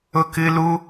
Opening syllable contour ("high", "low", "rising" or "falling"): high